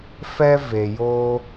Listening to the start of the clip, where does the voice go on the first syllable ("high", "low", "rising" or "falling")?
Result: high